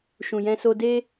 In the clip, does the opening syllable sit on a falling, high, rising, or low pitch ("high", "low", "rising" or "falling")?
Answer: low